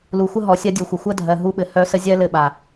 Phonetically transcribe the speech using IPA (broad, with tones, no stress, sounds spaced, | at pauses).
l u˨ xʷ ə˦ ɦ ɔ˨ sʲ ɜ˦ dʲ u˨ xʷ ə˨ xʷ ɜ˦ dʱ ɜ˨ ɦ u˧ ɓ ɘ˨ h œ˦ s ə˦ zʲ ɜ˦ l ɘ˦˨ ɓ a˨